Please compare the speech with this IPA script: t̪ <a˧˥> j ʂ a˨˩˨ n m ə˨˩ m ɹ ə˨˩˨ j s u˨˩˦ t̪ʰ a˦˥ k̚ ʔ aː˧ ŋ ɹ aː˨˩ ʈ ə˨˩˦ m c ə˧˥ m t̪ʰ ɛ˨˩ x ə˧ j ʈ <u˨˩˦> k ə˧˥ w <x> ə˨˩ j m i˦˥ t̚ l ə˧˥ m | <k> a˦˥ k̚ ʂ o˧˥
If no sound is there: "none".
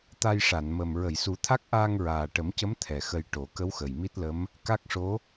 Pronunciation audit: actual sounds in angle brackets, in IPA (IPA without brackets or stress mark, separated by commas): a˧, o˨˩˦, x, k